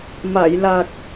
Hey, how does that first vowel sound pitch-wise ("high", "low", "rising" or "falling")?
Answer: low